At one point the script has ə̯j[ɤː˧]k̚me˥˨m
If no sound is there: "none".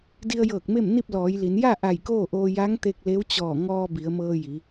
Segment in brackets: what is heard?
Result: ɤː˧˩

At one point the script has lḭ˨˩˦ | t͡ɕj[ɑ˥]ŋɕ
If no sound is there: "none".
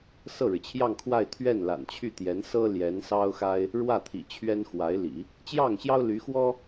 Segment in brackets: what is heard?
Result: ɑ˥˩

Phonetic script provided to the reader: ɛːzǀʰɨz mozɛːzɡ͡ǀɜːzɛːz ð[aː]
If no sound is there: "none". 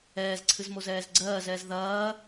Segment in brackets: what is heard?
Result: ɐː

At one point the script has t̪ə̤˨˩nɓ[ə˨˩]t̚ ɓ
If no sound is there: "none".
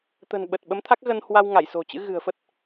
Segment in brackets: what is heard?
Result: ə˨˩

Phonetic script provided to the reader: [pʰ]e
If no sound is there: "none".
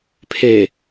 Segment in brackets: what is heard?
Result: pʰ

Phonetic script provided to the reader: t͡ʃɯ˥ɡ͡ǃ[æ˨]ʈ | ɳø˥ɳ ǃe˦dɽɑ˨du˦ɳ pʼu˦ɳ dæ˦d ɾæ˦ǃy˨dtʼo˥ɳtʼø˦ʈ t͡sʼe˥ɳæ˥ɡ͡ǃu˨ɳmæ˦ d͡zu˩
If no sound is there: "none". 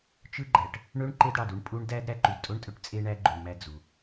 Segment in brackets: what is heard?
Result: æ˨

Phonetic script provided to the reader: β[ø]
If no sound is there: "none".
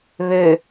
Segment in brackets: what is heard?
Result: ø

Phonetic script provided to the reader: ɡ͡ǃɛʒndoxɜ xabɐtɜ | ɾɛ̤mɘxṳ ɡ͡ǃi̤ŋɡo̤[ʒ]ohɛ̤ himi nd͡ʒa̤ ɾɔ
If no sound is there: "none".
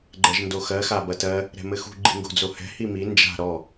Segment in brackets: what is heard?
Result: d͡z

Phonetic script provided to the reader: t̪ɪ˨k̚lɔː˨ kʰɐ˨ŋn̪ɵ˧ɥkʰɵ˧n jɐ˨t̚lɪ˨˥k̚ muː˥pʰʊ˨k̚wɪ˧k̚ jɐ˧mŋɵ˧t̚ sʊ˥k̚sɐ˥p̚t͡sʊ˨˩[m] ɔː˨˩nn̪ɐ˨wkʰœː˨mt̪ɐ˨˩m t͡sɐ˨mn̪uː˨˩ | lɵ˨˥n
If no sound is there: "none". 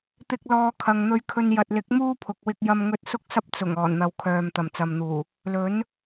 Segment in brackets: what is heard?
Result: ŋ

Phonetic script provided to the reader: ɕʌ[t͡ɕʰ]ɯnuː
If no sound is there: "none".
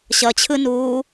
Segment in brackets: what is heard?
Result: t͡ɕʰ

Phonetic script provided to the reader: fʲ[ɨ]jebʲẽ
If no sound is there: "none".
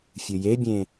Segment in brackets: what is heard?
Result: ɨ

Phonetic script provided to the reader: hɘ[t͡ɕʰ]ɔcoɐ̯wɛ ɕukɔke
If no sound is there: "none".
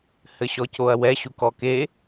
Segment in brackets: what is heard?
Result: ɕ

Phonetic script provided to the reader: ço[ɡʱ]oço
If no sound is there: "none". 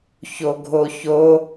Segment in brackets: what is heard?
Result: ɡʱ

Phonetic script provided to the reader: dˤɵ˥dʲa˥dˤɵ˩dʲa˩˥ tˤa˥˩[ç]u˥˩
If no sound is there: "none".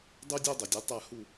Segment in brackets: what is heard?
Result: h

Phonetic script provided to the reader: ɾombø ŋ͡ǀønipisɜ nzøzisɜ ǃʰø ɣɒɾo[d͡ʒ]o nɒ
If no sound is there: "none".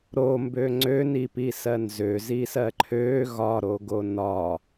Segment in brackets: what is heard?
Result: ɡ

